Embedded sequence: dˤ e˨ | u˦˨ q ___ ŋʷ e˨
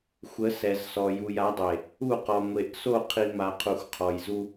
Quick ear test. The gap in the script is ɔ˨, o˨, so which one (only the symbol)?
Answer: ɔ˨